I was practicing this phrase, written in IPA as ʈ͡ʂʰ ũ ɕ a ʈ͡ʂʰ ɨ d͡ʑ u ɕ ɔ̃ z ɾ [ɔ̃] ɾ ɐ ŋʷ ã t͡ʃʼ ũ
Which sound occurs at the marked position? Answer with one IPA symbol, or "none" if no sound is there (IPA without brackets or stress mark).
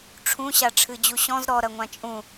ɔ